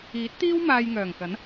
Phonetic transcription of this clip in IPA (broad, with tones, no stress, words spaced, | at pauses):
iː˨˥t̚t̪iː˥w maː˧jŋœː˨˩ŋkɐ˨˥n